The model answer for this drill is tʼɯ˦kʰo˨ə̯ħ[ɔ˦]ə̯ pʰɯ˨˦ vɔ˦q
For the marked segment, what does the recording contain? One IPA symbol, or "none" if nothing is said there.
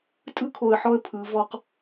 ɔ˦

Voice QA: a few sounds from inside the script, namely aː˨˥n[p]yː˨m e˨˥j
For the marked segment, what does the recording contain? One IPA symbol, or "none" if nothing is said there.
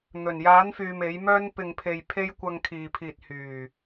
f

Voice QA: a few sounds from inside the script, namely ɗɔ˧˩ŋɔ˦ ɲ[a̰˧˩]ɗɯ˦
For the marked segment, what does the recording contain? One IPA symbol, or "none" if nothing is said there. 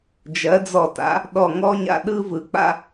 a̰˧˩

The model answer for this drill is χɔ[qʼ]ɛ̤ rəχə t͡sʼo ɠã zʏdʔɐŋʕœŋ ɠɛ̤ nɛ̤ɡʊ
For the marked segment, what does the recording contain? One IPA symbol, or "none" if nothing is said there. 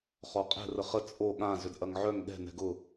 qʼ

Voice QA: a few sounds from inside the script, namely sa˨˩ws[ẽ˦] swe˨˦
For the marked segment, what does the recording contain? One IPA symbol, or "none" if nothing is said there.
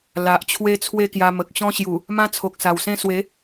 ẽ˦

